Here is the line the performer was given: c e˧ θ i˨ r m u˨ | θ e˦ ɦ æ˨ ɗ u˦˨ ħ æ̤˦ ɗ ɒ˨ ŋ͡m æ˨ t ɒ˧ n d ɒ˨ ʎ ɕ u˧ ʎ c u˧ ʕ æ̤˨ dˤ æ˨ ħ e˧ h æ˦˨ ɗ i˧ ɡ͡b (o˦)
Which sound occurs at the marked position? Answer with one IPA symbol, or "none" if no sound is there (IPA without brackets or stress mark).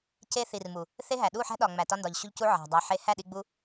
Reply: u˦